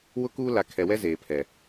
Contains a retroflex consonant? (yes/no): no